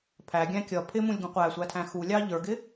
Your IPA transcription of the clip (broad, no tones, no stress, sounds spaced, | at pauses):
pʰ æ ɡʲ æ̃ kʲ ʌ pʰ ɪ m ũ lʲ ɡ ũ qʷ æ sʷ æ tʰ æ̃ x u lʲ ɑ ʎ ə˞ ɡ ɪ